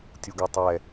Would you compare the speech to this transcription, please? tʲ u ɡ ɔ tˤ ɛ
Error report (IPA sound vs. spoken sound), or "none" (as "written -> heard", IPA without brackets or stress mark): none